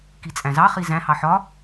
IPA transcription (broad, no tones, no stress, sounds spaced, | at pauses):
k i t͡sʼ æ̃ z ɑ χ i z æ̃ h ɑ ħ ɒ